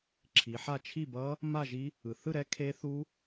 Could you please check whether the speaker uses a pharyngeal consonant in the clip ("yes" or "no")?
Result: yes